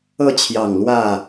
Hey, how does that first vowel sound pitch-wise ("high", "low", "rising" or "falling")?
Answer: falling